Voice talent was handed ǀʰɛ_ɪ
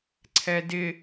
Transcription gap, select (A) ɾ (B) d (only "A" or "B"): B